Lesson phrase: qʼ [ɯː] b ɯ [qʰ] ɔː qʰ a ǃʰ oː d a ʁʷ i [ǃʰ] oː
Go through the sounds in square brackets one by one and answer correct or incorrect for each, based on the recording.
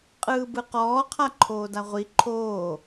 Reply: correct, incorrect: q, correct

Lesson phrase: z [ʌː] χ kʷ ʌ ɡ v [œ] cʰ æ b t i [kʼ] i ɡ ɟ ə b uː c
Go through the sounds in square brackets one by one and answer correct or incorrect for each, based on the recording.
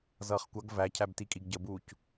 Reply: correct, incorrect: æ, correct

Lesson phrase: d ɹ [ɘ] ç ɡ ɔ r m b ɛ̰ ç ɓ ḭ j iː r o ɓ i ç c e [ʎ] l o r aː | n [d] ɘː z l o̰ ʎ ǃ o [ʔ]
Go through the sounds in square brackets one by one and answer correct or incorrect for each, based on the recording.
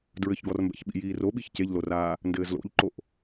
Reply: correct, correct, correct, correct

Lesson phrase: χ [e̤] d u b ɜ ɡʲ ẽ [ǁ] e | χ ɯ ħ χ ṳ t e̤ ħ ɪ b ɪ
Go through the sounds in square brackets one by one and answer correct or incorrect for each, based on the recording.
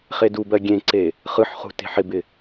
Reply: incorrect: e, incorrect: ǀ

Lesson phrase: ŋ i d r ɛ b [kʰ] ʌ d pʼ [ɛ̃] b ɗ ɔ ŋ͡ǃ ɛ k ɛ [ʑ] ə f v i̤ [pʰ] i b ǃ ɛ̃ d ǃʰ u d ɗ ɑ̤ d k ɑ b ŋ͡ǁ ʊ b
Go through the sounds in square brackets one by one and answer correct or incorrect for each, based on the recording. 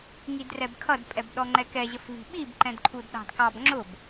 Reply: correct, incorrect: ɛ, correct, incorrect: ɓ

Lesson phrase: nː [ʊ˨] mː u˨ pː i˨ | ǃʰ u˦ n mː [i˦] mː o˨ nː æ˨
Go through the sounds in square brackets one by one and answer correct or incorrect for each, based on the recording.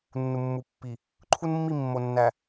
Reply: incorrect: u˨, incorrect: i˦˨

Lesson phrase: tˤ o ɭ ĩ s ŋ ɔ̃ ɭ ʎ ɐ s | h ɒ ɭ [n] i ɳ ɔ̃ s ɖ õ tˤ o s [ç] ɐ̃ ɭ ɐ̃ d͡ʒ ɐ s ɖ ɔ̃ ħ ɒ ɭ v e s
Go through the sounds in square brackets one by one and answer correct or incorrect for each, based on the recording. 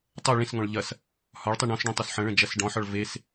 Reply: incorrect: tˤ, incorrect: ħ

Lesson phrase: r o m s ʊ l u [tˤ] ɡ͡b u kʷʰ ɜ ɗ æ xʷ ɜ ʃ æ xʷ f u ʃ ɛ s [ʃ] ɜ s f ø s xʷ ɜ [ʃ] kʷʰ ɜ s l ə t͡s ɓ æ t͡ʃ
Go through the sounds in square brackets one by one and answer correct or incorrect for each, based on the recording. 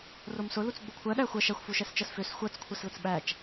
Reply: incorrect: t͡s, incorrect: t͡ʃ, incorrect: t͡s

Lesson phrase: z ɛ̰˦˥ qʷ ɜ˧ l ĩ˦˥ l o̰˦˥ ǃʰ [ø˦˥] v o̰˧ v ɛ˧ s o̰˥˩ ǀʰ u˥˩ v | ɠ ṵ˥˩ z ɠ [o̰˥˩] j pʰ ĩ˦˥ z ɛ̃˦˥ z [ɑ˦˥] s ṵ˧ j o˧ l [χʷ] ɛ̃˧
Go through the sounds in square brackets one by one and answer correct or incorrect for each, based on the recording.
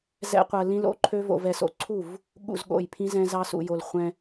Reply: correct, correct, correct, correct

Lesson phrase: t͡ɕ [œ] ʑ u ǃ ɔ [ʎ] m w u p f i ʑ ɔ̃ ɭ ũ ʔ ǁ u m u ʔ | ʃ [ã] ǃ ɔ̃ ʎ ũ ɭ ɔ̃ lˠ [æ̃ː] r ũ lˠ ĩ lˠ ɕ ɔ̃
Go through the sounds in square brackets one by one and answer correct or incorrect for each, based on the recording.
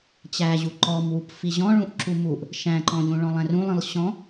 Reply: incorrect: æ, incorrect: none, incorrect: æ̃, incorrect: æ̃

